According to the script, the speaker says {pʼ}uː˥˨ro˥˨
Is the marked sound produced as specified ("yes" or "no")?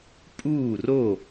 yes